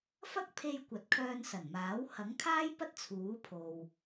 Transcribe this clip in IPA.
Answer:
f ɐ˥ k̚ pʰ e˧ j kʷ ɐ˨˥ t̚ kʰ œː˧ n s ɐ˨˩ n m aː˨˥ w h ɐ˨˥ ŋ kʰ aː˥ j p ɐ˥ t̚ t͡sʰ uː˨˥ pʰ o˧ w

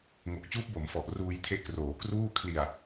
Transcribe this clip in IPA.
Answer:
ŋ o˨˩ k̚ t͡ɕ uː˦˥ p̚ b o˩˦ m f ɔ˨˩ ʔ r uː˧ j tʰ e˦˥ ʔ k r oː˩˦ k r uː˥˩ kʰ l i˨˩ a̯

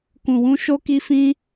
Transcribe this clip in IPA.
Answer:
k ũ˧ w ũ˦ ʃ o˦ k i˦ f ĩ˦

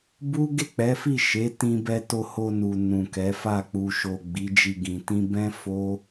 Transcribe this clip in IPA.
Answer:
b u˦ ɡ e˦˨ k͡p ɛ˨˦ f i˦˨ ʃ e˨˦ t ĩ˧ b ɛ˧ t o˧ h o˧ n u˨ n ũ˨ k ɛ˨˦ f a˦˨ k͡p u˨ ʃ o˨ ɡ͡b i˨˦ d͡ʒ i˧ ɡ ĩ˧ t ĩ˦ b ɛ̃˦ f o˦

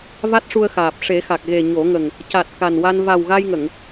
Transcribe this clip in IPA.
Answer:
v a˦˥ t̚ ʂ u˧ ə̯ x aː˨˩ p̚ ʂ e˨˩˦ x a˨˩ k̚ ɣ e˨˩ ɲ o˨˩˦ ŋ ə˨˩ ŋ | c a˨˩ t̚ k a˨˩ n w a˧ n v a˨˩ w ɣ a˧ j ŋ ə˨˩˨ ŋ

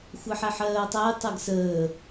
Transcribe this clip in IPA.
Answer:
xʷ ɜ ħ ɛ ħ ɜː tˤ æ j tˤ ɛ ɡ s əː

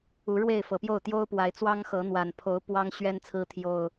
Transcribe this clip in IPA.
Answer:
u˨˦ ɻ w e˥˨ ɪ̯ f ɤ˨˩ p j o˥˨ ʊ̯ t̪ j o˦ ʊ̯ p w a˨˦ ɪ̯ t͡s w ɑ˦ ŋ x ɤ˨˦ n̪ w a˨˩ n pʰ o˨˦ ʊ̯ p w ɑ˦ ŋ ɕ ɥ ɛ˦ n t͡sʰ ɹ̩˦ t̪ʰ j o˨˩ ʊ̯

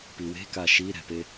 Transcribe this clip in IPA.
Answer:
p i w e̤ k a ʃ i ɾ ɛ̤ p e

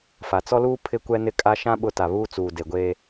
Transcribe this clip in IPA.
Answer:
f a˨ t͡s ɔ˦ l uː˦ pʰ ɪ˦ kʷ ɛ˦ n ɪ˦ kʼ a˦ ʃ ã˦ ɓ ʊ˦ t a˨ β uː˦ t͡s uː˨ d e˨ ɡʷ eː˦

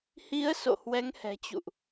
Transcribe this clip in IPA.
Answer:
h i˨˦ ə̯ s o̰˧˨ h w ɛ˨˦ ŋ h ɛ̤˨˩ t͡ɕ ṵ˧˨ ʔ

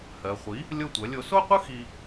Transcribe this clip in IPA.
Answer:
h ɜ˩ χʷ i˩˥ | lʲ o˥˩ tʷ ɜ˩˥ lʲ o˧ s o˥ qʷ ɯ˥ x i˧

